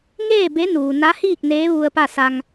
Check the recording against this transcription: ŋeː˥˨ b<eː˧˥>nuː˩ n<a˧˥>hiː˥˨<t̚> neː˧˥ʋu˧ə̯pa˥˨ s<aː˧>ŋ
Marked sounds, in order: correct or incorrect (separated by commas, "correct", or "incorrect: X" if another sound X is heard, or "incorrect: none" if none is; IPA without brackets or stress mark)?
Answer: incorrect: e˧˥, correct, incorrect: k̚, incorrect: a˧